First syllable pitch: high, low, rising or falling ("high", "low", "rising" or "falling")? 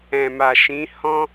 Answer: low